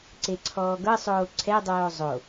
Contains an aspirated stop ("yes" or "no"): yes